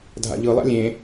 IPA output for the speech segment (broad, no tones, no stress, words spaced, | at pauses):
dʱa̰ʎɯlˠa̰ lʲẽ